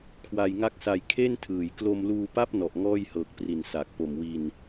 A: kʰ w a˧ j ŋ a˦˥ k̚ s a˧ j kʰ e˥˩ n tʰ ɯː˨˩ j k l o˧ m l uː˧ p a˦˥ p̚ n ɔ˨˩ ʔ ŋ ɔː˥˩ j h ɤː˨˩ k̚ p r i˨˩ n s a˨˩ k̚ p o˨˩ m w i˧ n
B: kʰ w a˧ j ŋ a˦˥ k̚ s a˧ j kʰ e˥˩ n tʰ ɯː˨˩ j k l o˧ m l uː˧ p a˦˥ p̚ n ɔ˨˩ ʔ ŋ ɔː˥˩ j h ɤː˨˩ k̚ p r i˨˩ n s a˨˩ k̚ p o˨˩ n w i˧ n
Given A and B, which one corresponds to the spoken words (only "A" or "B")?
A